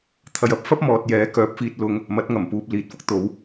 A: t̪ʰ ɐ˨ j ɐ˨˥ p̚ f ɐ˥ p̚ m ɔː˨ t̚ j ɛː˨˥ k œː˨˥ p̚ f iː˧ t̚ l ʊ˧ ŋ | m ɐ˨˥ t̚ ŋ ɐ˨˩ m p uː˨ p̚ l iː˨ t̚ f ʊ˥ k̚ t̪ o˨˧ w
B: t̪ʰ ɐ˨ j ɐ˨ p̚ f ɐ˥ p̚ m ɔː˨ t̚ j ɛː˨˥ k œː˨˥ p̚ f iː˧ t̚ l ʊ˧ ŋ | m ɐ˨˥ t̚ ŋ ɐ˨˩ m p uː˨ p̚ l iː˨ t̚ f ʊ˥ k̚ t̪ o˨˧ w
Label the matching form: A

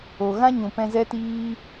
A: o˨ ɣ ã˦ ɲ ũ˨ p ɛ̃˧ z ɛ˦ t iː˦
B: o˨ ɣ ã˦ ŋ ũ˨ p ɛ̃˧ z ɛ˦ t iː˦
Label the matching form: A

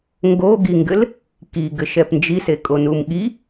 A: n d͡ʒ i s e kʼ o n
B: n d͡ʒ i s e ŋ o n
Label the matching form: A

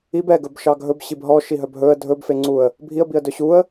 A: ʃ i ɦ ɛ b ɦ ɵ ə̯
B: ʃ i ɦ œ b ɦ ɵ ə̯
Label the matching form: B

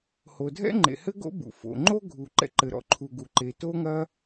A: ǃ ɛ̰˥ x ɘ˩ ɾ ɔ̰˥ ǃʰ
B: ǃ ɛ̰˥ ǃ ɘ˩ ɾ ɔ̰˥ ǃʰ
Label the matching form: B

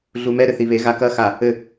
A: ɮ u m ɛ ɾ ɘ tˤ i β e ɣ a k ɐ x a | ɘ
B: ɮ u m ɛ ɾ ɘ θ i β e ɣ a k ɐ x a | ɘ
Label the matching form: B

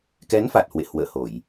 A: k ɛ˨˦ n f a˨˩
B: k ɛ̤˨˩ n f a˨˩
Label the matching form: A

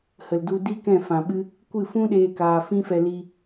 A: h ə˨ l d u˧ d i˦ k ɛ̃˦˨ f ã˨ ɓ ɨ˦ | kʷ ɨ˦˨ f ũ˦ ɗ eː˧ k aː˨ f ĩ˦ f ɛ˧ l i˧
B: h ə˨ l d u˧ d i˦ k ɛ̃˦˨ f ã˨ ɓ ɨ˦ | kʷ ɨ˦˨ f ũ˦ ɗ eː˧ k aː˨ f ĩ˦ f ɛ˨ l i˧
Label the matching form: A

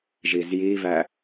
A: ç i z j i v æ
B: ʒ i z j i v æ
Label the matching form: B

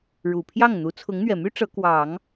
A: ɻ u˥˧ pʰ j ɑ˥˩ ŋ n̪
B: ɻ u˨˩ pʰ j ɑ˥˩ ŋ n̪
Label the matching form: B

